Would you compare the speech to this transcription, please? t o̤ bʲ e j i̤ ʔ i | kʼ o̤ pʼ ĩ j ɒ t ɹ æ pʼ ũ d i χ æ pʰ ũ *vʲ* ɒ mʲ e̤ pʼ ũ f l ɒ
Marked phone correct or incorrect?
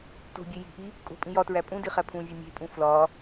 correct